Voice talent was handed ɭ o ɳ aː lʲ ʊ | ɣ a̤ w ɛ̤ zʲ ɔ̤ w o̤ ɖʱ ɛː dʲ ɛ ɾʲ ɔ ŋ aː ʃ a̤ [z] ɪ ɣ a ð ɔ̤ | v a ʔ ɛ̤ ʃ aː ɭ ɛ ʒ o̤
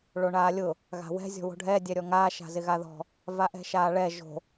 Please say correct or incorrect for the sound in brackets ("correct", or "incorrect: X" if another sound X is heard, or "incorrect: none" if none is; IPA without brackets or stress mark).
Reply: correct